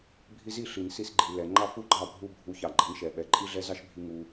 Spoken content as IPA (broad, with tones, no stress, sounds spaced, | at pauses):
bʱ i˧ z i˦˨ ɬ i˨ n s i˧ s ɡ͡ǃ i˨ l ɛ˨ ŋ͡ǃ ɑ˦ f u˦ ɡ͡ǃ ɑ˦˨ bʱ u˧ bʱ u˨˦ ç ɑ˨ ɡ͡ǃ ɛ˨˦ n ʃ ɛ˨ ɓ ɛ˨ ǃʼ i˦ ɮ ɛ˦ z ɑ˦ ʃ bʱ i˦ ŋ u˦